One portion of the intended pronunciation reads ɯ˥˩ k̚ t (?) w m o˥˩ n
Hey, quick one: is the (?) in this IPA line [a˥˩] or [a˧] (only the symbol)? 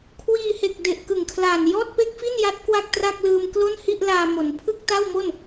a˥˩